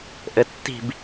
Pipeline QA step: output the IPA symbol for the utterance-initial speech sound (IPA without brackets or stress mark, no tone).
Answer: ʔ